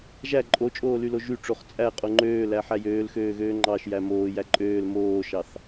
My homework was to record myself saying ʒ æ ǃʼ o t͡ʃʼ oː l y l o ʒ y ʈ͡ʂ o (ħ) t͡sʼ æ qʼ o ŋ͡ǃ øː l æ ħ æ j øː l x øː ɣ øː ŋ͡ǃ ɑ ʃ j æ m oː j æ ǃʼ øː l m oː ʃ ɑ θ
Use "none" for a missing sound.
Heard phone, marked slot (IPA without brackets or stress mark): χ